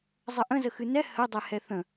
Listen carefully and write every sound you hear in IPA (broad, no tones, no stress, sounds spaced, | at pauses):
zˤ ə ʔ ə̃ z ə x ɨ n ɛ h ə dˤ ɛ h ɛ θ ə̃